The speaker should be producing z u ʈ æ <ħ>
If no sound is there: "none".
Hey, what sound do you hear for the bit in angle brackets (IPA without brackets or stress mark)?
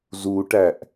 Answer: ʔ